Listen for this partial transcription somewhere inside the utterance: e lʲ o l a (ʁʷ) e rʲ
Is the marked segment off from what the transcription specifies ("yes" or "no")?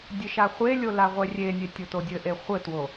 no